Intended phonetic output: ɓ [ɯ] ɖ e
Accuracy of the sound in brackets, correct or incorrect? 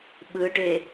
correct